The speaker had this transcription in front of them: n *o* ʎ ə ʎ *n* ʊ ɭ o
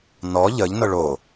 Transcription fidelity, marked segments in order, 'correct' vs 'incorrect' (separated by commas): incorrect, correct